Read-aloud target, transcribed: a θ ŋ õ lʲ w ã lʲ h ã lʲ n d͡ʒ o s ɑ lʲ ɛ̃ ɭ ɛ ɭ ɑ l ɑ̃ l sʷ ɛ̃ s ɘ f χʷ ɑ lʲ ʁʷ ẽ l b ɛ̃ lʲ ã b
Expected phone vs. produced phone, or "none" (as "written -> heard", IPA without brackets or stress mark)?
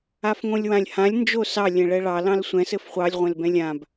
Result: θ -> f